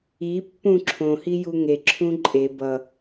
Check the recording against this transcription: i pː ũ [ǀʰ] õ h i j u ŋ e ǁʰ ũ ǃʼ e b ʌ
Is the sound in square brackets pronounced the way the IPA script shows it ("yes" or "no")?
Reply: no